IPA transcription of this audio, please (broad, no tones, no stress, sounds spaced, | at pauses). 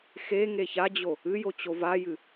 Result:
x e ŋ e ç a d͡ʑ o | ɨ j o t͡ɕ o v a j ɨ